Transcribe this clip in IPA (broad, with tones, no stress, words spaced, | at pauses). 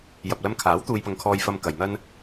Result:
jɐ˨p̚lɐ˧mkʰaː˨˥w t̪uː˧jpɐ˧ŋkʰɔː˧j fɐ˧mkɐ˨j n̪ɐ˥n